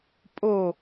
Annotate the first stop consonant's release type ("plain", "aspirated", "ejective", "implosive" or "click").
ejective